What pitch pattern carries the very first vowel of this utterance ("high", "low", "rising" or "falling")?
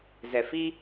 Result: low